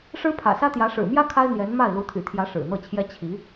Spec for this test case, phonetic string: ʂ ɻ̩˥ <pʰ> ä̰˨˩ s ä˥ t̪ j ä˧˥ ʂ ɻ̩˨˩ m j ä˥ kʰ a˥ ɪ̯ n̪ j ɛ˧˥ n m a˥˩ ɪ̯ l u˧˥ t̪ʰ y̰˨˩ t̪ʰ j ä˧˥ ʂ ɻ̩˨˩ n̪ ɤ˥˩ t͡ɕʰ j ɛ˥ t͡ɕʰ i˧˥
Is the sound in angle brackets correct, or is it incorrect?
correct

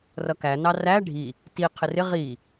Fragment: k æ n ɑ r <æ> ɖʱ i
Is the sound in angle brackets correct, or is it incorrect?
correct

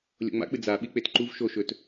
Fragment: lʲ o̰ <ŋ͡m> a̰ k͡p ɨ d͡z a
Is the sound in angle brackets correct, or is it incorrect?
correct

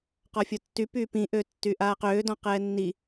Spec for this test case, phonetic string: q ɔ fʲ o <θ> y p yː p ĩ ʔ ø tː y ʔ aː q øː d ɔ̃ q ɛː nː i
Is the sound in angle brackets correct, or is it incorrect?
incorrect: tː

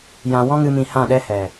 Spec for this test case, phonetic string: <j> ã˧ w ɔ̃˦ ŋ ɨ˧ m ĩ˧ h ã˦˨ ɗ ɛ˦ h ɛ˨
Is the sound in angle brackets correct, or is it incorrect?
correct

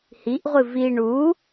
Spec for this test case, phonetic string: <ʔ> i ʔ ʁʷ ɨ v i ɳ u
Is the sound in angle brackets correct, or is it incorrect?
incorrect: h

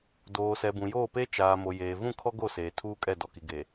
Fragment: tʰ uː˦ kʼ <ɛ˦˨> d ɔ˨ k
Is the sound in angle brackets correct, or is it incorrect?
correct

